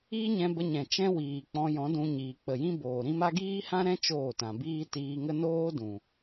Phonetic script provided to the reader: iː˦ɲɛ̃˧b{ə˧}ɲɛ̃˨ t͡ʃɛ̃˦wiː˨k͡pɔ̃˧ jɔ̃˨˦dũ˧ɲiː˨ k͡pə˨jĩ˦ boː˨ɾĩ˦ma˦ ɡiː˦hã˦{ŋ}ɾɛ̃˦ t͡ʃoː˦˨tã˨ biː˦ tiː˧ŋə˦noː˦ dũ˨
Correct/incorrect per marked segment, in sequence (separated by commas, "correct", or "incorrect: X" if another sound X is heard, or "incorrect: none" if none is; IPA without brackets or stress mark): correct, incorrect: none